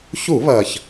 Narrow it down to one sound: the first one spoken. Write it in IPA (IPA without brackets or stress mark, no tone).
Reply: ç